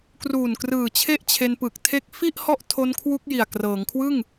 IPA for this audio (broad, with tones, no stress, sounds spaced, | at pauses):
k r uː˨˩ n k r ɯː˨˩ t͡ɕʰ e˥˩ ʔ t͡ɕʰ e˧ n p ɯ˨˩ k̚ tʰ e˦˥ k̚ f i˥˩ ʔ h ɔ˥˩ ʔ tʰ o˦˥ n kʰ w u˦˥ k̚ j i˨˩ a̯ k r ɤː˩˦ ŋ kʰ w ɯ˥˩ ŋ